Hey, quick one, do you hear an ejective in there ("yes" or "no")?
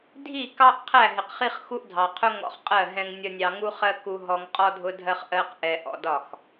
yes